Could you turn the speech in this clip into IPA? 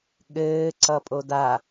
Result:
ɠ ɘː ǀ ʌ pʼ o d a

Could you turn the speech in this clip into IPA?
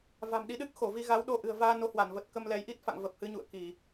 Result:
v a̤˨˩ m ɗ i˨˦ ɗ ɨ˦˥ k̚ x o˧˩ v i˧ ɣ a˨˦ w ɗ o˧ ʔ ɨ̤˨˩ ə̯ v aː˧ n o˨˦ h w a˧˩ n v ə˨˩ t̚ k ə˧ m l ɛ˨˦ j ʔ i˦˥ t̚ f a̰˧˨ ŋ v ə˨˩ p̚ h ɨ˨˦ ɲ ṵ˧˨ ə̯ k i˧˩˨

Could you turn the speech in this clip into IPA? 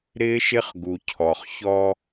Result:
ɾ ɪː˦ ʃ ɪ˦ χ ɡ u˨ cʰ ɔ˨ χ ç ɔ˦

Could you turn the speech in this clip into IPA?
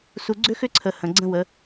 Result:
s u˨ ɡ͡ǀ ʏ˦ x ʏ˦ ǀʰ ə˨ h ə̃˨ ɡ͡ǀ ə̃˦ w ə˨˦

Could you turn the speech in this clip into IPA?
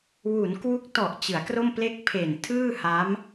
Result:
w u˩˦ n k w u˦˥ k̚ t ɔ˨˩ ʔ t͡ɕ ɯ˩˦ a̯ k r o˥˩ m p l e˥˩ k̚ pʰ e˨˩ n tʰ ɯː˥˩ h a˦˥ m

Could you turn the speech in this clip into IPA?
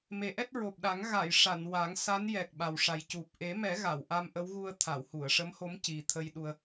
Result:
m e˨˩˦ ʔ ɛ˦˥ t̚ ɹ o˨˩ p̚ ɗ a˨˩˦ ŋ ɣ a˨˩˨ j ʂ a˨˩˨ n w a˨˩˦ ŋ s a˧˥ n j ɛ˨˩ k̚ ɓ a˨˩ w ʂ a˨˩ j c u˨˩ p̚ ʔ e˨˩˦ m ɛ˨˩˦ ɣ a˨˩˨ w ʔ a˧ m ʔ ə˧˥ w ɣ u˧ ə̯ t̪ʰ a˨˩˨ w h u˨˩˨ ə̯ ʂ ə˧˥ m h o˧˥ m c i˨˩ t̪ʰ ə˧ j ɗ u˧ ə̯

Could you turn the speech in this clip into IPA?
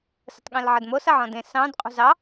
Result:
s ə̤ tˤ ɠ ẽ l ʕ ə d m o s ɐ ʕ ɔ̃ d ẽ s ɑ̃ d qʼ ṳ z ɑ

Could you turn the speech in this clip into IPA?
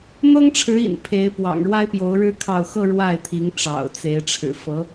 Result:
n̪ ɤ˥ ŋ ʈ͡ʂʰ ɻ̩˧˥ ḭ˨˩ n pʰ e˧˥ ɪ̯ p w ɑ̰˨˩ ŋ ɻ w a˥ ɪ̯ p j o˧˥ ʊ̯ ɻ ɻ̩˥ kʰ ɑ˥˧ ʊ̯ x ɤ˥˧ ɻ w a˥˩ ɪ̯ t̪ʰ i˧˥ ŋ ʈ͡ʂ ɑ̰˨˩ ʊ̯ t͡s e˧˥ ɪ̯ ʈ͡ʂʰ ɻ̩˨˩ f ɤ˧˥

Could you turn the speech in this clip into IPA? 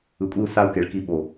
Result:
ɯ˨ kʷʼ i˦ u̯ s a˦ u̯ k e˨ ɭ k i˦ ɓ o˨

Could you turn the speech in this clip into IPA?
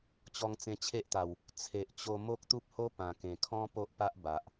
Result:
t͡ɕ ɔ˧ ŋ t͡s ẽ˧ t͡ɕʰ e˦ ʔ t̪ a˨˩ w | t͡sʰ e˨ ʔ t͡ɕ o˧ m o˦ k̚ t̪ u˦ p̚ h o˦ p ã˨˩ k ẽ˨˩ kʰ ɔ̃˦ p o˦ ʔ p a˦ ʔ b a˨ ʔ

